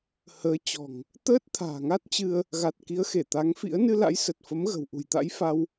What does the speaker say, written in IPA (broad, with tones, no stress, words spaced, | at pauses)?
həː˨˦t͡ɕɔ̤˨˩ŋ | t̪əː˦˥t̚t̪ʰa̤ː˨˩ŋa˦˥t̚t͡ɕɨ˧ə̯ | ɣa˨˩t̚ki˨˦ə̯xe˧˩ t̪a˨˦ŋfḭ˧˥ə̯ nɨ˧la̰˧˥j sə˨˩t̚fə˨˦mɣə̤˨˩wʔṳ˨˩j t̪a̰˧˥jfa˧w